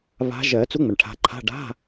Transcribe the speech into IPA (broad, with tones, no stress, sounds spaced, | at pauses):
β a̤˨˦ ʒ ɜ˨˩˦ t͡s u˨˦ ŋ͡m ə˩ ɳ ʈʰ a̤˨˦ ǃʰ a̤˧˥˧ ɖ a̤˧˥˧